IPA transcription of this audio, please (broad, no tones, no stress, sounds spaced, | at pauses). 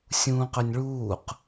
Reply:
sʲ ũː q ɵ nʲ ɭ uː q